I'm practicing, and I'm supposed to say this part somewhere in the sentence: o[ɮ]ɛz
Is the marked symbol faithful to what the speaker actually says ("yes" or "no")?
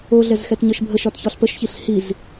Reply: yes